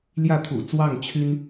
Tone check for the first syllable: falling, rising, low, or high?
falling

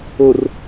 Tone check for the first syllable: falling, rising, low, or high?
low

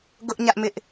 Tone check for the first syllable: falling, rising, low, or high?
high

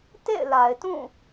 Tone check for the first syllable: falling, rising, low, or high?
falling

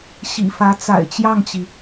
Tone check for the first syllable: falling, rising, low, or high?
low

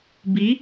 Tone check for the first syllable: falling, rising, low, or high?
rising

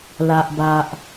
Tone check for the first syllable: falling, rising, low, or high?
low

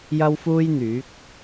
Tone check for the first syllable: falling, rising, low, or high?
high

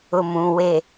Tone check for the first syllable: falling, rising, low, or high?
low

